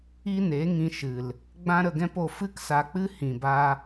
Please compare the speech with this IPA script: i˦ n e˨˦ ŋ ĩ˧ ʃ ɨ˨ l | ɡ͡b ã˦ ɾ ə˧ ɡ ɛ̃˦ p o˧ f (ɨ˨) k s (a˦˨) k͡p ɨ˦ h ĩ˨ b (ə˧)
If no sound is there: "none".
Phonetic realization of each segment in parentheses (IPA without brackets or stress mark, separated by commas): ɨ˦, a˧, a˧